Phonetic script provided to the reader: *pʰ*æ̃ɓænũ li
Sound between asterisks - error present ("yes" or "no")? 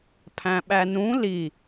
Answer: no